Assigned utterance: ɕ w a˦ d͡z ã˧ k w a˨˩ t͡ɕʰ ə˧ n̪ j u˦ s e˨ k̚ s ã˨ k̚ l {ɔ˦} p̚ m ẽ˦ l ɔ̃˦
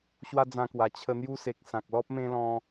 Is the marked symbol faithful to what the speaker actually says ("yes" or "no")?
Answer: yes